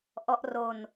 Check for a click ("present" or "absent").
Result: absent